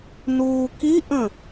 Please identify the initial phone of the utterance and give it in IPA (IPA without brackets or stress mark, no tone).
n